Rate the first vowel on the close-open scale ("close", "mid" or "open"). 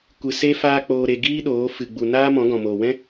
close